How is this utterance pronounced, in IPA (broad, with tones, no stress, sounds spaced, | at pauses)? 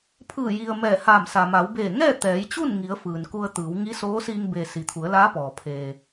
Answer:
pʰ ɯː˧˩ j i˩ ə̯ m ɛː˧˩ h aː˧˩ m s a˩ m a˩˧ w b eː˧˩ ŋ ɛː˥˨ t̪ ɛː˩˧ j t͡ɕ u˥˨ n ŋ i˩˧ ə̯ f ɯː˩ n k u˧ ə̯ t̪ ɯː˩˧ w ŋ i˧˥ s oː˧˥ s iː˧ ŋ b e˩ s i˩ t̪ʰ u˩˧ ə̯ l aː˧˥ p ɔː˩ pʰ eː˩